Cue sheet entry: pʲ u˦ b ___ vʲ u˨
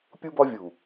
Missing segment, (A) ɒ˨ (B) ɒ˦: B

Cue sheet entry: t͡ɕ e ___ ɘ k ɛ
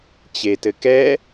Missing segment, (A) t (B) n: A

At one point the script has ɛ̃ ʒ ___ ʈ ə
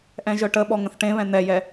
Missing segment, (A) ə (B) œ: B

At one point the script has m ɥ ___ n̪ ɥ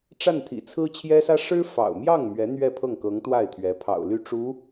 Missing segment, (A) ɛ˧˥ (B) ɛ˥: A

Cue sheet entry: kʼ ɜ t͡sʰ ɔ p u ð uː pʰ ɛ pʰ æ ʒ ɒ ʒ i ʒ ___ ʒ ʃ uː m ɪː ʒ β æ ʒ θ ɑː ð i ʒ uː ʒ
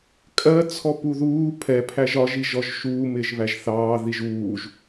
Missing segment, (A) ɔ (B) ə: A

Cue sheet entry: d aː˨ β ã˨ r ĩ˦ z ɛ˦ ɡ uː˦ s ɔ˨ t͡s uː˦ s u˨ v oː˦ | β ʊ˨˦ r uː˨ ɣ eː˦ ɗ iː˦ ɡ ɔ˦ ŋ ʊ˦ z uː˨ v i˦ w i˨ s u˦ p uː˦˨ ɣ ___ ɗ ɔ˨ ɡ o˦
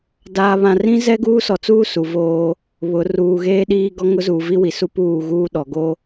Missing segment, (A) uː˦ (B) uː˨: A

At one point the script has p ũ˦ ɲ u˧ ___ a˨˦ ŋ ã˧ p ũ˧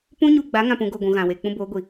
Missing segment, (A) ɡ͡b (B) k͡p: A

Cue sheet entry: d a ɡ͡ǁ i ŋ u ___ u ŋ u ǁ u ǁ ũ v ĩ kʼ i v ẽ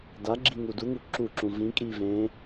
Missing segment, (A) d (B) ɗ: A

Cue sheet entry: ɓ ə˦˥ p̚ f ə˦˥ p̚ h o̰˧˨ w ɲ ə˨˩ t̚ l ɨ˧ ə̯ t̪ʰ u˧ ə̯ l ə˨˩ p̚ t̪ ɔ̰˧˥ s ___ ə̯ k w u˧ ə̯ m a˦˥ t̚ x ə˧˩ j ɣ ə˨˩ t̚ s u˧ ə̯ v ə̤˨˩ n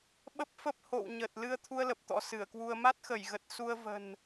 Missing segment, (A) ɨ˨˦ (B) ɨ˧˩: B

